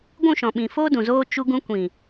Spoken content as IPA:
ɡʷ ũ˦˨ ʃ ɔ̃˨ ɓ ĩ˨ f oː˦ d ũ˨ z oː˦ t͡ʃ u˧ ɡ ũ˧ kʷ ĩ˨

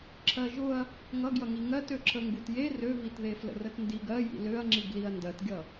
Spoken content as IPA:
ǁʰ ɜ ʒ ʊ ɐ̯ | ŋ ʌ ɡ j ʌ ŋ i ŋ ɜ t ø ǁʰ ə ŋ ɡ u t j e r ø v i t ð e f l ə̰ r ə t n d i ɡ ɜ j ḭ l ø ɐ̯ ŋ͡ǁ i ɡ l i ɐ̯ n d ɜ t ɡʲ ʌ

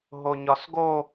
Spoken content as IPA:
ɦ o ɲ ɒ s ɡ o

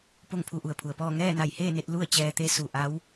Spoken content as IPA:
p o˥˨ ŋ pʰ u˧ ʔ u˩ ə̯ pʰ u˩ ə̯ p ɔː˥˨ ŋ ɛː˥˨ n a˧˩ j h eː˥˨ n e˧ t̚ l u˥˨ ə̯ t͡ɕ ɛː˧ t̪ e˧˥ s u˩ ʔ a˧˥ w

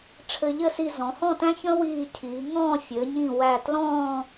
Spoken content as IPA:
ʈ͡ʂʰ ɘ˧ ʎ ɘ˥˧ s i˧ z ɔ̃˩˧ h ɔ̃˥˧ t æ̃˥ ç ə̃˥ w iː˧˩ cʰ iː˩˧ ŋ ɔ̃ː˥˧ fʲ ɘː˩˧ ɲ ĩ˧˩ w æ˧˩ t l ɔ̃ː˥˧

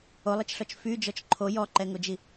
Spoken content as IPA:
o lˠ i t͡ʃ ɬ ɔ t͡ʃ f y d͡ʒ ɔ t͡ʃ ǃʰ o j ɔ ǃ ɛ ŋ o d͡ʒ i

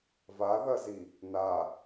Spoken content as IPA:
v a ð ɐ z i | n a

